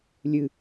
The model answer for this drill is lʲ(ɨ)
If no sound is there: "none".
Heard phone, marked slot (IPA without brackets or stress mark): ɨ